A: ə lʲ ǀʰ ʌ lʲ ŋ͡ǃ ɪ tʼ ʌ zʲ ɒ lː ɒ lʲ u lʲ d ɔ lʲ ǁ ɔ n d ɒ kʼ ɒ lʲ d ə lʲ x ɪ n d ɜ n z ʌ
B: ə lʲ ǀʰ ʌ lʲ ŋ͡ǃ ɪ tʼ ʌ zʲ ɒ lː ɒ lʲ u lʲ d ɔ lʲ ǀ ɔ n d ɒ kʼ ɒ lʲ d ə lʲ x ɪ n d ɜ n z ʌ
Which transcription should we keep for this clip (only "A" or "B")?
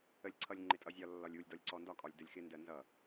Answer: B